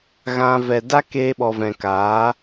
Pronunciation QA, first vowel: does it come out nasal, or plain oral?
nasal